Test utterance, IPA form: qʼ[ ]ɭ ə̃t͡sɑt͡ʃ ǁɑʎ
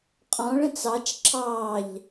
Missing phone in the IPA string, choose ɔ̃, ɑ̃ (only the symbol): ɔ̃